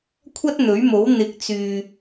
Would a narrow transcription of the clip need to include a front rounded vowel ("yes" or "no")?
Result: yes